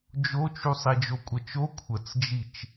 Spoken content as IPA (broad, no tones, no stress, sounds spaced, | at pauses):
d͡ʒ o t͡ʃ u sˤ i d͡ʒ o kʷʼ ə t͡ʃ o kʷʰ ə t͡s d͡ʒ i t͡ʃ